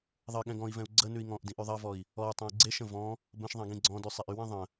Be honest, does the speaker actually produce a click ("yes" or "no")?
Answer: yes